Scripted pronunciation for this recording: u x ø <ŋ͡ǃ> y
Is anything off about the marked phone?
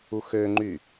no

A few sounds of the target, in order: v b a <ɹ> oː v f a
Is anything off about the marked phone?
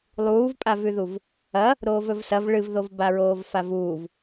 no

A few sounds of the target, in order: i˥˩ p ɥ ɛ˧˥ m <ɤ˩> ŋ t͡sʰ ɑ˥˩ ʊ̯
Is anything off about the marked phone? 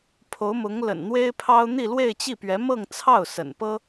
yes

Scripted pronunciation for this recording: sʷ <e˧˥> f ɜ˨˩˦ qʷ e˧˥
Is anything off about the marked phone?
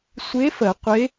no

